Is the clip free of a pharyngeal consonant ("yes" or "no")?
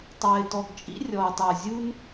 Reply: yes